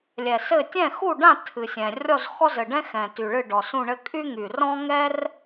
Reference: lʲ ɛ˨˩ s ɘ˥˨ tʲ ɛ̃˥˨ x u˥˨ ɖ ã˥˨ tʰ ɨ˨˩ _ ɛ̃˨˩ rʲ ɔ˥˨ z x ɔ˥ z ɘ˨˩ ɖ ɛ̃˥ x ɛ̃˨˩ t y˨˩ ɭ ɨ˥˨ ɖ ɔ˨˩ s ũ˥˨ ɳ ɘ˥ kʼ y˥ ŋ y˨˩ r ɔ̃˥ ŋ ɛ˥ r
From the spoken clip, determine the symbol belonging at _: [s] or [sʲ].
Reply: sʲ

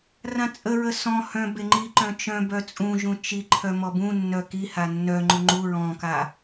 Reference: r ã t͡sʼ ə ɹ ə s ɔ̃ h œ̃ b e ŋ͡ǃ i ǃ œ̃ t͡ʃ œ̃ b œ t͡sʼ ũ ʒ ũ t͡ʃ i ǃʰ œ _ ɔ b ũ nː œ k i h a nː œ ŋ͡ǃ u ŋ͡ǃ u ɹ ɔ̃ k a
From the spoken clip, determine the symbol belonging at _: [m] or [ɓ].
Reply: m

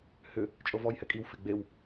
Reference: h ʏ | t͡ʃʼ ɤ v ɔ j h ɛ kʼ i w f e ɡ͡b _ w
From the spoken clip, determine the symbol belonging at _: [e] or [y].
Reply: e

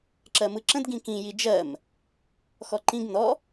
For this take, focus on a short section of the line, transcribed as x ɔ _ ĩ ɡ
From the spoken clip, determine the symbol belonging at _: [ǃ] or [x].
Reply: ǃ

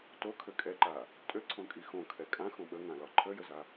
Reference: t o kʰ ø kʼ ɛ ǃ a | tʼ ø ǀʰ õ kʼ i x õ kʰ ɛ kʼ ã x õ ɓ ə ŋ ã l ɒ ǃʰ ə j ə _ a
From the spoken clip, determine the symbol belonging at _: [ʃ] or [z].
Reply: z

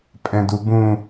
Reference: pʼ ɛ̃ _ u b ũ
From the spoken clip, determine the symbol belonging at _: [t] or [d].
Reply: d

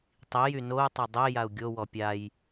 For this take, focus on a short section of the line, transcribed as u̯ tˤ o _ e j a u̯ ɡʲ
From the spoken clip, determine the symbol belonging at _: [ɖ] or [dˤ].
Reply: dˤ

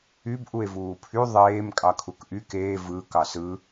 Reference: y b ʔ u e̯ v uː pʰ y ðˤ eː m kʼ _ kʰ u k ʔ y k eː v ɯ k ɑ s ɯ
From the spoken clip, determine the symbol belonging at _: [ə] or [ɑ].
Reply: ɑ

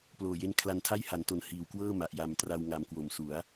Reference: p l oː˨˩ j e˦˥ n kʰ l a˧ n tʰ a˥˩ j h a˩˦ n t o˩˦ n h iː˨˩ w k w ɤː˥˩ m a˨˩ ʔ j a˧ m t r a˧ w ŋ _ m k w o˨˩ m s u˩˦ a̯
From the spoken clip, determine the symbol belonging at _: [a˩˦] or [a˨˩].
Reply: a˨˩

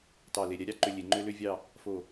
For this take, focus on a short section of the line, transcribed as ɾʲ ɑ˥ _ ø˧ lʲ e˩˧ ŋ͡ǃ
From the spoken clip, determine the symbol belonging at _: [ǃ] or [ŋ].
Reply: ǃ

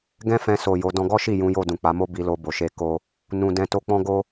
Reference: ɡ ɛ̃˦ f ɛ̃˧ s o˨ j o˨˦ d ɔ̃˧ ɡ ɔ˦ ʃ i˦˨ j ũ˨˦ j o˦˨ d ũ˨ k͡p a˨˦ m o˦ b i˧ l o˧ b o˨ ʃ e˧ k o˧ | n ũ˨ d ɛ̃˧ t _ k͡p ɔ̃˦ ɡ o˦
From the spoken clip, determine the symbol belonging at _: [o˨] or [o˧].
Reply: o˧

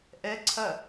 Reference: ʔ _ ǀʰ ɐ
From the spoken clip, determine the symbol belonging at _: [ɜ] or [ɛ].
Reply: ɛ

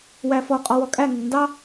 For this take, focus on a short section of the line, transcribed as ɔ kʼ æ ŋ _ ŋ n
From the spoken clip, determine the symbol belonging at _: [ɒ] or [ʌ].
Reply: ʌ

